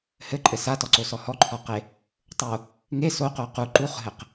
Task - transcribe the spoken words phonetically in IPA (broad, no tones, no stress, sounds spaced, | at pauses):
h ɘ ǃʼ ɘ s a t ɔ ǀ o s ɔ h ɔ ǃʰ ɔ q e | tˤ o | ŋ e s o q o q u ǃ u χ ɦ ɘ q